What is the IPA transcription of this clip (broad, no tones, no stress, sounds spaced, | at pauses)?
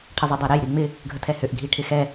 ʈʰ ə zˤ ʏ dˤ a ɾ ɛ j ɾ i ŋ͡m ɪ | ɡʱ ə tʰ ɛ h ʏ ʔ ɡʱ i ʈʰ ɪ x ɛ